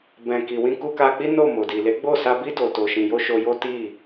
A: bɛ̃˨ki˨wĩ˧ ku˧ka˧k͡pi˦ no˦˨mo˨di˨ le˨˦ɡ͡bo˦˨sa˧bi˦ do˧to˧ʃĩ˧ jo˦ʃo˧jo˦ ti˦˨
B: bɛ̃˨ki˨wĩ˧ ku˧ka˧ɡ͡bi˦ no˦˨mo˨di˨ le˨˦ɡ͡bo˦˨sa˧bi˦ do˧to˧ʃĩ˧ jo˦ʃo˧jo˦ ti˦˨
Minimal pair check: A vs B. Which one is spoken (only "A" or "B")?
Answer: A